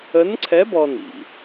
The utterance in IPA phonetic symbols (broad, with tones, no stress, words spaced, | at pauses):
ə˧˥nǀʰɛ˧˥bɔ˧ nḭ˩